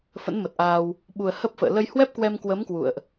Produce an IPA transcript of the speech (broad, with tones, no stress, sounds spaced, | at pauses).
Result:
f ə̰˧˥ n m ə˨˩ t̚ ʔ aː˧ w | ɓ u˨˩ ə̯ h ə˦˥ p̚ f ə̰ː˧˨ l ə˧ j h w ɛ˦˥ p̚ k w ɛ˧ m k w ə˨˦ m k w ṵ˧˨ ə̯ ʔ